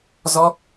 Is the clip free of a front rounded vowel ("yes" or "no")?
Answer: yes